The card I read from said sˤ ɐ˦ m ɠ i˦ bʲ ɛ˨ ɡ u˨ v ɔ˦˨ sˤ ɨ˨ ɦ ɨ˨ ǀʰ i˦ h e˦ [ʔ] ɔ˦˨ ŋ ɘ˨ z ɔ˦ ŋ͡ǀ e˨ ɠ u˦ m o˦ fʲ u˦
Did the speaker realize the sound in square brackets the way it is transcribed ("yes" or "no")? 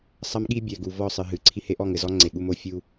yes